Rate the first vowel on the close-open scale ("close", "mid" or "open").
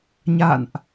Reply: open